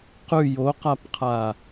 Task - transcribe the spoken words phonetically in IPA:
q ʉ j o q a p qʰ a

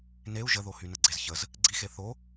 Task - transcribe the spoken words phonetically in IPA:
n e u̯ ʒ ə ð o h y n ə ɡ͡ǀ e z ç ə z | ɡ͡ǀ i x e θ o

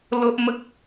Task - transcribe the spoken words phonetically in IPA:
l o˦ ʔ m ə˦ k̚

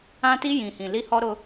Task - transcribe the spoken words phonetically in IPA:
ã˦ t i˦ j ĩ˨ h ĩ˨ l i˦ h ɔ˦ ɾ ʊ˦

